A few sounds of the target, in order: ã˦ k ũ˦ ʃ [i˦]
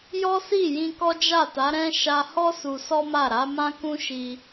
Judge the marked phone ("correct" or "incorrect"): incorrect